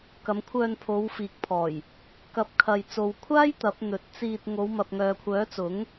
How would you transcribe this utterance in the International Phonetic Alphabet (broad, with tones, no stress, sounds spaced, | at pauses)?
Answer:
k ɐ˨˧ m kʷʰ œː˧ n pʰ o˨˧ w f iː˨ k̚ pʰ ɔː˨˩ j | k ɐ˧ p̚ kʰ ɐ˧ j t͡s o˧ w kʷʰ aː˥ j t̪ ɐ˨˥ p̚ n̪ ɵ˨˥ t̚ t͡s iː˧ t̚ ŋ o˨˧ w m ɐ˨ p̚ ŋ œː˨ kʷʰ œː˨˥ t͡s ʊ˨˥ ŋ